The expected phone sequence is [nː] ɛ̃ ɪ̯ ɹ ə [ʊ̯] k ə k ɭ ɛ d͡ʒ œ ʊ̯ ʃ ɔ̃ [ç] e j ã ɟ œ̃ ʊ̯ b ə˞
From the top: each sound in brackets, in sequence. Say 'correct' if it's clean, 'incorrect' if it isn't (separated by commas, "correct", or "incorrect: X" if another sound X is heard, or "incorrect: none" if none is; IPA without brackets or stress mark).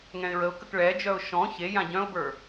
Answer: incorrect: ŋ, correct, correct